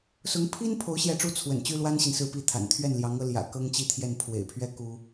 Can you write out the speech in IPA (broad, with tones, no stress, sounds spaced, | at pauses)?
s ʊ˧˥ ŋ pʰ i˥ n pʰ o˧˥ ʊ̯ ɕ j ɛ˧˥ ʈ͡ʂ u˧˥ t͡sʰ w ə̰˨˩ n t͡ɕ y˥ l w a˥ n ɕ i˨ n s ɹ̩˥˧ p i˥˩ t̪ʰ a̰˨˩ n t̪ʰ ɥ ɛ˥˩ n l j ɑ˧˥ ŋ ɤ˧˥ l j ä̰˨˩ k ɤ˥ ŋ t͡ɕ i˥˧ t̪ʰ j ɛ˥˩ n pʰ w ḛ˨˩ ɪ̯ pʰ ɥ ɛ˥ k u˥